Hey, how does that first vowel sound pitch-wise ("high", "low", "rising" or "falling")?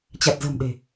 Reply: low